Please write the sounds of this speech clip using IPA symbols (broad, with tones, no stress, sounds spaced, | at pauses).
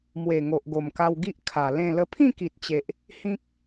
m w e˨˩ ŋ o˨ ʔ ɡ o˨˩ m k a˧ w ɡ i˦ ʔ kʰ a˨˩ l ẽ˥˧ l ə˧ pʰ ĩ˥˧ k i˨ t̚ t͡ɕ e˨ ʔ | h ĩ˦ k̚